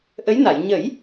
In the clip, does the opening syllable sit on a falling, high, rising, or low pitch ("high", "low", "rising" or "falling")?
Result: rising